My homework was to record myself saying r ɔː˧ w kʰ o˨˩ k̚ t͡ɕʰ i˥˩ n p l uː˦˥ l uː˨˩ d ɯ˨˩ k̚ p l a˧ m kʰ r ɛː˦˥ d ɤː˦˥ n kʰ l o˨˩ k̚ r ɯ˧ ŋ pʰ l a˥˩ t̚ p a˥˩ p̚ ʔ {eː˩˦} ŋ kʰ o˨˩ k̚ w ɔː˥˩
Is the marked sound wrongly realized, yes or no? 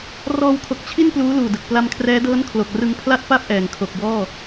yes